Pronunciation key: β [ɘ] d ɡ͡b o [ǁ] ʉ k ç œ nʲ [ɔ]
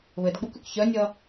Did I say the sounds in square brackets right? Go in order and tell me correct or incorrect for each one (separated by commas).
correct, incorrect, incorrect